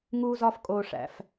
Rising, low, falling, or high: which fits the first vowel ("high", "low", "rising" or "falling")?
high